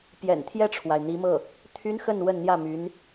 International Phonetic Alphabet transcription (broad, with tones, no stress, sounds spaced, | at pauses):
p j ɛ̰˨˩ n t̪ʰ j ɛ˥˩ ʈ͡ʂʰ w a˩ ɪ̯ n̪ i˧˥ m ɤ˥˩ | t̪ʰ y˥ n x ə˥˧ n w ə˥˧ n n̪ j ä˥˩ m y˧˥ n